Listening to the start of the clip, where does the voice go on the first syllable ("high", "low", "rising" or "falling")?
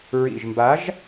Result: low